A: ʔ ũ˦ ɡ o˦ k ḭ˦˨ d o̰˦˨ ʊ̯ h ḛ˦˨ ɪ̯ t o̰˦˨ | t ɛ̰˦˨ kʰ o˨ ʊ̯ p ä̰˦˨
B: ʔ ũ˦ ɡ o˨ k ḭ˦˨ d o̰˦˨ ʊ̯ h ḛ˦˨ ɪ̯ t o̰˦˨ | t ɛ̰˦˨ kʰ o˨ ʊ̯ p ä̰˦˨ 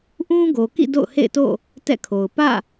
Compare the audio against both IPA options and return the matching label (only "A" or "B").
B